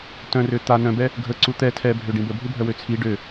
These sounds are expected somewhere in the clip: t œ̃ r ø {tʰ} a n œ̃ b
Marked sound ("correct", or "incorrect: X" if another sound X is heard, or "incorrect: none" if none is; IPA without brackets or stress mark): incorrect: t̪